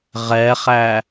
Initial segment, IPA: ʁ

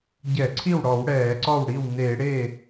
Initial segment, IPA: ɟ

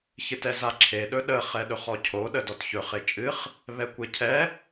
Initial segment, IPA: ç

